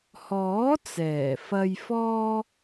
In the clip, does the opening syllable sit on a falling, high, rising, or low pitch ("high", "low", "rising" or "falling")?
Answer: rising